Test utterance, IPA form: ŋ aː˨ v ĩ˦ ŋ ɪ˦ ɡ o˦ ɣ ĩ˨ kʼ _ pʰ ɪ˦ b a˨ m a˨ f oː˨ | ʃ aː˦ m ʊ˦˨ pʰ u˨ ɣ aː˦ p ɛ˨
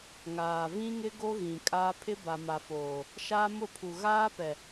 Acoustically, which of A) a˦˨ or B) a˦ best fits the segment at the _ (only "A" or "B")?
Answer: B